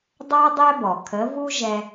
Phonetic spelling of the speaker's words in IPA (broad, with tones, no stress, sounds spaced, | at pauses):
dˤ a˥ dˤ ɛ˥ b ɔ˩ kʰ ə˩˥ v u˥ ʒ ɛ˧